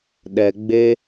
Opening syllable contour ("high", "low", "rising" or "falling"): low